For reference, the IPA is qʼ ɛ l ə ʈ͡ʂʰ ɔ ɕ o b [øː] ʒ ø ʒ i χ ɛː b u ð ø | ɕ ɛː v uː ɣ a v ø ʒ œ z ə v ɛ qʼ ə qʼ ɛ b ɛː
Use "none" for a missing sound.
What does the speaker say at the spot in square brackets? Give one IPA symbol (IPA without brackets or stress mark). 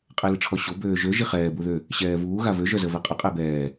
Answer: øː